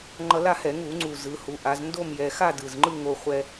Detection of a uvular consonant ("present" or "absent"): present